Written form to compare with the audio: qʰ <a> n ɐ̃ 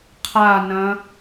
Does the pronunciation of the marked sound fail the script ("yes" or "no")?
no